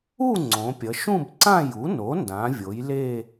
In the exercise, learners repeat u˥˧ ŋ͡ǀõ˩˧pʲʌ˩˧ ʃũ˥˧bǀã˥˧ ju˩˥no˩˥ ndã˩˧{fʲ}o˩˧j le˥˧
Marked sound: incorrect: vʲ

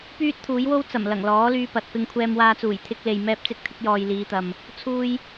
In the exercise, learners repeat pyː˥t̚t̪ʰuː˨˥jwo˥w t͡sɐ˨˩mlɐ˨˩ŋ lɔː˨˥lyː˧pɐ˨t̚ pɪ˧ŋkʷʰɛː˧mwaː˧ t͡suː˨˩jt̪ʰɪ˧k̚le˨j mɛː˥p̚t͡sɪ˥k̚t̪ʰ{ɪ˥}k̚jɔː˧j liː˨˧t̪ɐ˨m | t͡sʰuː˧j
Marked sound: correct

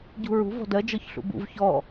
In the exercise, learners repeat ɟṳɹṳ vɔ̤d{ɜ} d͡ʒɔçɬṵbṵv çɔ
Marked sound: correct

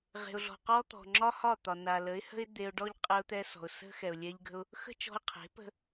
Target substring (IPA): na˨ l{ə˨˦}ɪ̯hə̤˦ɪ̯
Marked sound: correct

